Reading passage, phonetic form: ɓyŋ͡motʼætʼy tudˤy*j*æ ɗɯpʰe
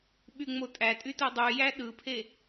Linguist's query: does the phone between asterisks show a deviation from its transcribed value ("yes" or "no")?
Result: no